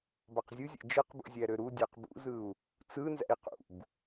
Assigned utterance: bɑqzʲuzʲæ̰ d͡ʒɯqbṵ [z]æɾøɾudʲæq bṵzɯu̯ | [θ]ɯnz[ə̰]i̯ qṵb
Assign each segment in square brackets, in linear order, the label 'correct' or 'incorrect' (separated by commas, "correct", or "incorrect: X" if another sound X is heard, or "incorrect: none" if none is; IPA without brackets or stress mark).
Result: incorrect: zʲ, incorrect: t͡s, incorrect: æ̰